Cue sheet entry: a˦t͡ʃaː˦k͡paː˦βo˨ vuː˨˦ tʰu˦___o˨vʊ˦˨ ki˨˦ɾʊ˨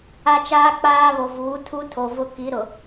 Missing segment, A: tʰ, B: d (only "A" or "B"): A